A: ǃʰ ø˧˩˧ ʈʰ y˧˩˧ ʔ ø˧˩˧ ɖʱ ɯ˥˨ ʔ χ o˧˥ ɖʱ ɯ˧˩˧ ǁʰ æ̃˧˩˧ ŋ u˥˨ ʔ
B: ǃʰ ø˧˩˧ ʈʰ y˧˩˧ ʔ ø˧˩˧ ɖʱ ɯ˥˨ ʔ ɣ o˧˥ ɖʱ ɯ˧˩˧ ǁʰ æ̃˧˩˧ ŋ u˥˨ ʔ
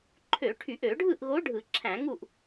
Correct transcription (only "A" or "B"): B